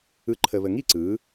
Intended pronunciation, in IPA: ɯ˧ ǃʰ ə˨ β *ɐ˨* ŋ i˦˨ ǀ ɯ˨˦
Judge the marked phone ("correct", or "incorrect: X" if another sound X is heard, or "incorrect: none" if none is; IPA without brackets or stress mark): incorrect: ə˨